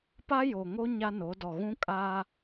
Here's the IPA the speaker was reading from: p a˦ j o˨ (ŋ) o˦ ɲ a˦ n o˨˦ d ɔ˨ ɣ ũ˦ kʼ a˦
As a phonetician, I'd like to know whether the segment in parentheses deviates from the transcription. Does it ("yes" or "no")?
no